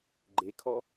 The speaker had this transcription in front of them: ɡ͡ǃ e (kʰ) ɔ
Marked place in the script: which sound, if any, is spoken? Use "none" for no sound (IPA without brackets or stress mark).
kʰ